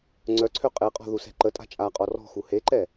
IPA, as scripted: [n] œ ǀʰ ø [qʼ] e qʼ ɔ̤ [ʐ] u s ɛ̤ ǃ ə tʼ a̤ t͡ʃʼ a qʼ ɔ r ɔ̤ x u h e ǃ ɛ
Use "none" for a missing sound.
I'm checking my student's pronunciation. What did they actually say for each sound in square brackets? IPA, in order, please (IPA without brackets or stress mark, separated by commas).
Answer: ŋ͡ǀ, qʼ, ð